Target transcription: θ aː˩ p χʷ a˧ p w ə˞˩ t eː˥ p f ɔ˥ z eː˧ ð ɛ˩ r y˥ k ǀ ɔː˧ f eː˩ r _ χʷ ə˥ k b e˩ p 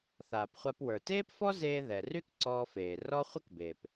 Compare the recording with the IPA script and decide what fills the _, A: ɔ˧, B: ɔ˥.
B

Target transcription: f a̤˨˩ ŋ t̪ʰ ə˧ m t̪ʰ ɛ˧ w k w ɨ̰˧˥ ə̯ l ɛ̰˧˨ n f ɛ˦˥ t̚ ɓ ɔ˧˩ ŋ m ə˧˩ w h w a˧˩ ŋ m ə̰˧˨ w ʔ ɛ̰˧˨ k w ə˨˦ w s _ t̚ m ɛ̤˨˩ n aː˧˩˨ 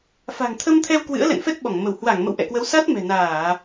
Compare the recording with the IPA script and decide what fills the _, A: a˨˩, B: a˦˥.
B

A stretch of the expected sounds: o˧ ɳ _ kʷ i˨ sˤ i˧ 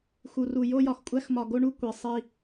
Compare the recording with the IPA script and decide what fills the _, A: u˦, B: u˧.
B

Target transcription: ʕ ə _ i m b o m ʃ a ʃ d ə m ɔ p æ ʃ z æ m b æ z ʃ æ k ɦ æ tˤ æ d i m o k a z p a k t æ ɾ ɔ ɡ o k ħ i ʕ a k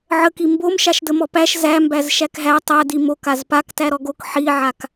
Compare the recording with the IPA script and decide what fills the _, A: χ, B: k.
B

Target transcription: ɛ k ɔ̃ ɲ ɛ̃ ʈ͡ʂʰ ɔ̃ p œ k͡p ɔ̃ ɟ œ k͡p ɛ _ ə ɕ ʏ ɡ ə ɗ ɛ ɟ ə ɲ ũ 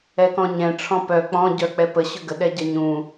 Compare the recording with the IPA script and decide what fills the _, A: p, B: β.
A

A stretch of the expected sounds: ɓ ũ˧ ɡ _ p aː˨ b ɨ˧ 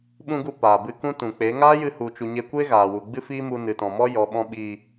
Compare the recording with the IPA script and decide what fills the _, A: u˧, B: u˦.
A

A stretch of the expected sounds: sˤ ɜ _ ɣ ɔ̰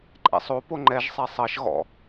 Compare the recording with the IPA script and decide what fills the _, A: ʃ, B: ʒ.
A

